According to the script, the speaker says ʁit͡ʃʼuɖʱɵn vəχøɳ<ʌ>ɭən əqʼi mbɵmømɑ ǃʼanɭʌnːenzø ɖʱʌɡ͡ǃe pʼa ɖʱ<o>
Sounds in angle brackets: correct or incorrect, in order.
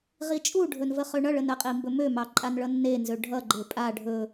correct, incorrect: ɵ

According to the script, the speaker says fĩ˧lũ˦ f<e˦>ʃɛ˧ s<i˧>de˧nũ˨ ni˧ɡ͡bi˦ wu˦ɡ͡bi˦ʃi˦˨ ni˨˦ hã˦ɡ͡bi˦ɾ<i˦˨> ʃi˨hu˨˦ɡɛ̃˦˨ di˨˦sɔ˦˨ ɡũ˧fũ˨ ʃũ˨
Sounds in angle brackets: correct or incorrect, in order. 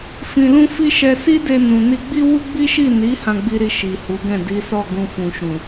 incorrect: i˦, incorrect: i˦, correct

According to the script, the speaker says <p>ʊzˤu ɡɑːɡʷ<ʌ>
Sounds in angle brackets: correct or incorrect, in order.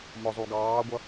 incorrect: m, correct

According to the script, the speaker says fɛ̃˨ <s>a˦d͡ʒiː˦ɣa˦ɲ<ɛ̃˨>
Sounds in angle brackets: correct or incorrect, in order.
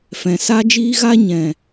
correct, correct

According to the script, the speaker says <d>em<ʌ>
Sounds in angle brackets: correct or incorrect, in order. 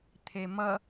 incorrect: t̪ʰ, correct

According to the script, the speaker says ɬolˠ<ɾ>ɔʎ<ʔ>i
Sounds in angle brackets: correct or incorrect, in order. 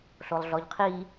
incorrect: ɮ, incorrect: qʰ

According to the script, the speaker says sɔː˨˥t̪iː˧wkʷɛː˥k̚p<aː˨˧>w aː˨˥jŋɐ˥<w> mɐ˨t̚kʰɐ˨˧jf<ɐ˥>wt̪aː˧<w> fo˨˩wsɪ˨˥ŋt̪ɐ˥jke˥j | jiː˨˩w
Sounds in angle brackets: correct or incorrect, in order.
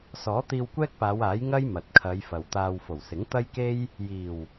correct, incorrect: j, incorrect: ɐ˨, correct

